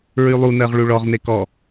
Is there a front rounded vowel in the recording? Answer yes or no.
yes